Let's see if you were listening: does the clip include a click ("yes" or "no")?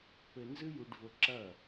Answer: yes